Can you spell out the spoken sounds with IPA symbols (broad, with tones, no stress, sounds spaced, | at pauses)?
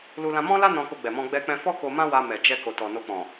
l u˧ l ã˧ m ɔ̃˦ l a˦ n ɔ̃˧ k o˧ ɡ͡b ɛ˨ m ɔ̃˧ ɡ͡b ɛ˧ k͡p ɛ̃˧ f ɔ˦ k o˧ m ã˦ w a˧ m ɛ˨ d͡ʒ ɛ˧ k o˨ t ɔ˨ n o˧ k͡p ɔ̃˨